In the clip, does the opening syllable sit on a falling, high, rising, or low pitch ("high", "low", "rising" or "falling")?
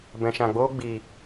low